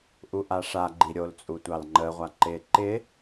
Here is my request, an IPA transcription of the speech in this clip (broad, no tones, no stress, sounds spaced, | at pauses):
ʔ u ʔ a ʂ a ɡ͡ǃ i ɾʲ o l t͡sʼ u tʷ ɑ l ŋ͡ǃ ə ʁʷ a ǃ ɪ ǃ ɪ